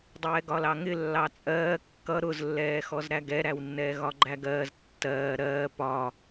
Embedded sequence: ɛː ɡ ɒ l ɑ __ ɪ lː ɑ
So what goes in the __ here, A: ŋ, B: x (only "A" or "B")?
A